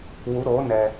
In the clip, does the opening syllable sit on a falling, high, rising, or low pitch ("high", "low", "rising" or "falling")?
rising